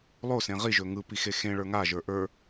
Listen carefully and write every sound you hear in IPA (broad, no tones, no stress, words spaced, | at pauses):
lˠosẽ ʁiʒɵ ŋɯpixe xẽɭə˞ ŋaʒə˞ ʔə˞